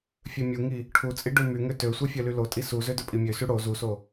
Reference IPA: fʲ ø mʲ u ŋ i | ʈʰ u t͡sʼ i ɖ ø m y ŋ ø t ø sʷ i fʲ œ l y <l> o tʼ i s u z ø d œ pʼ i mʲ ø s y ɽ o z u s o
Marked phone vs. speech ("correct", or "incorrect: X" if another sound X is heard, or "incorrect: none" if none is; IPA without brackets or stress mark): correct